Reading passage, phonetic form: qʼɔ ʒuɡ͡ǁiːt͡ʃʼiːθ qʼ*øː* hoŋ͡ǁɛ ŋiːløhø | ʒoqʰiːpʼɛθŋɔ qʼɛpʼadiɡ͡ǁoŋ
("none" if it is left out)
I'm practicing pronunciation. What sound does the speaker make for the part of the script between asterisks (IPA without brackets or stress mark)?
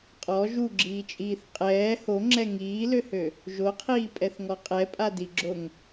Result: ɛː